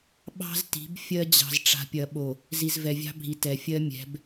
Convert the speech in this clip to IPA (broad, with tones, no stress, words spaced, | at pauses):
ɓɑ̤˦zti̤˨˦b fʲɜ˦ d͡ʑɑ̤˨zʈ͡ʂa̤˨pʲɐ˨ɓo˨ | zi˨zvɛ˨vʲɑ̤˦bʱi˨ tɛ˨fʲɜ˦ mʲɛ̤˨˦b